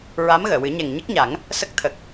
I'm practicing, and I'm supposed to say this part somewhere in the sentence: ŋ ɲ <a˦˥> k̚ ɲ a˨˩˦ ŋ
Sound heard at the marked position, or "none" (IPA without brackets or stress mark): ə˦˥